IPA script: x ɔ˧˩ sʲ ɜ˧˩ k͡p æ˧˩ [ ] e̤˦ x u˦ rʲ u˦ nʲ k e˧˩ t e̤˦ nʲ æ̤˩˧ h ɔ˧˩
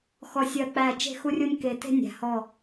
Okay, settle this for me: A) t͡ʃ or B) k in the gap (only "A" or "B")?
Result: A